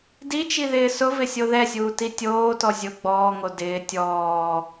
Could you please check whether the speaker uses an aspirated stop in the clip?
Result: no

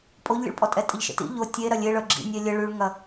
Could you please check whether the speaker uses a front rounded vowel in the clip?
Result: yes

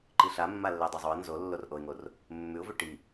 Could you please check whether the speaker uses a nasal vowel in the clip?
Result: no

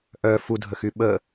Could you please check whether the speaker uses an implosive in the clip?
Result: yes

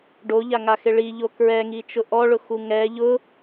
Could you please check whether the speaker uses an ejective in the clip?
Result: no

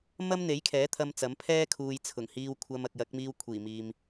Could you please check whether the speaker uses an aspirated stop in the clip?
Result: yes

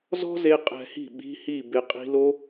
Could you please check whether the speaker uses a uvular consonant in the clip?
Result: yes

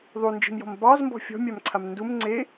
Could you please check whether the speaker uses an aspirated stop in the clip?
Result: yes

